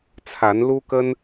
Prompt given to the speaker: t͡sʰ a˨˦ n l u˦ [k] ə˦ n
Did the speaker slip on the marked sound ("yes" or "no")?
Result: no